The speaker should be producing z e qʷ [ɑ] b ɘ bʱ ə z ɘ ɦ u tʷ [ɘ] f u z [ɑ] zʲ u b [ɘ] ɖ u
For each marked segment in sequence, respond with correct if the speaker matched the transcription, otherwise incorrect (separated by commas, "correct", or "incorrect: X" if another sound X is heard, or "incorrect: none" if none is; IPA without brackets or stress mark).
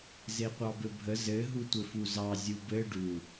correct, correct, correct, correct